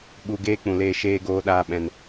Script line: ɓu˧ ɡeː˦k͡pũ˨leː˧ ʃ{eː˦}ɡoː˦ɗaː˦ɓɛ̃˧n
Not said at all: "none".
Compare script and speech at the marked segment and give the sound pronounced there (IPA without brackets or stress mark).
eː˦